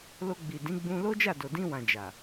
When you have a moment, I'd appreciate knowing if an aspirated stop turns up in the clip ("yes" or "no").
no